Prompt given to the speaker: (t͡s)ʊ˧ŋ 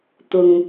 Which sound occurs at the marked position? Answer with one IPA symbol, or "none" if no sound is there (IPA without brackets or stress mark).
t̪